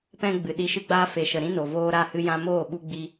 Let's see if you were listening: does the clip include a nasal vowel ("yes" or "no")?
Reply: yes